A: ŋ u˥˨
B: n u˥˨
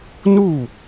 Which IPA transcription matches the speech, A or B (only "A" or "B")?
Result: B